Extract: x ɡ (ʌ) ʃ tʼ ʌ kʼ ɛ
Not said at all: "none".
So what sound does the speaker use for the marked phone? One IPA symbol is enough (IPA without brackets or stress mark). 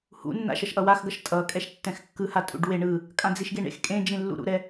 ʌ